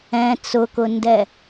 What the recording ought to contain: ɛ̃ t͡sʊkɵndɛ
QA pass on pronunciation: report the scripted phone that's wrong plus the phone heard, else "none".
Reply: ɵ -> ʊ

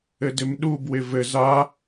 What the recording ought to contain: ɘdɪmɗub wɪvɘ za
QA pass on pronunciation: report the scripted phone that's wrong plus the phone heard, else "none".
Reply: none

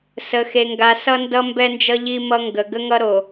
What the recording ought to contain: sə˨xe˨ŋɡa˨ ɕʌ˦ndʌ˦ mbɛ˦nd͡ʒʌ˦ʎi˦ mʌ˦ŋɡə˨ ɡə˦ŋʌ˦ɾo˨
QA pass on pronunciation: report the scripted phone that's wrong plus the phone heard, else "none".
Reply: ɕ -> s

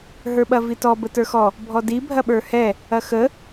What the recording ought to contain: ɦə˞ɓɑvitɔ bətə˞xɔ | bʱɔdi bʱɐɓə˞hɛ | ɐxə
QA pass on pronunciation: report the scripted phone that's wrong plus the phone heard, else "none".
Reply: ɑ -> ɐ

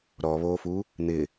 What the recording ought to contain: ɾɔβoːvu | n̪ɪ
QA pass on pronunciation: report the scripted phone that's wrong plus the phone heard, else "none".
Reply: v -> f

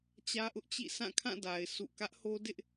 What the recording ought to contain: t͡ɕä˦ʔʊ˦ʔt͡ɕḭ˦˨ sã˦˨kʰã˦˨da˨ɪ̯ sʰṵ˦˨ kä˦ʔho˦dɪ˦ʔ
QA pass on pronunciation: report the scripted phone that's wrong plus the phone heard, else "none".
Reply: none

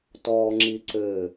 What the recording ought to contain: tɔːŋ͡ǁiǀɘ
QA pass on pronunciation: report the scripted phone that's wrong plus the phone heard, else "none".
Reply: none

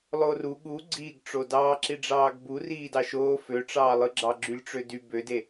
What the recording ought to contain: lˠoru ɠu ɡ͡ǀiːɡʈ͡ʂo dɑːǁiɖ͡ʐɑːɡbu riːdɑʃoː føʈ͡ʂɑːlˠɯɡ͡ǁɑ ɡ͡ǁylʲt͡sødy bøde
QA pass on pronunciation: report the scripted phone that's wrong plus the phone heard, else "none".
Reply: t͡s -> ʈ͡ʂ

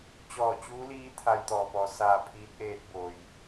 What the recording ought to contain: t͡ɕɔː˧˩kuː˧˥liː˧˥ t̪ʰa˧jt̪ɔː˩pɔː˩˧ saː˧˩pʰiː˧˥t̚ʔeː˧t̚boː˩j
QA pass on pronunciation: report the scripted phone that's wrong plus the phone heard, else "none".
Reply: k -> t͡ɕ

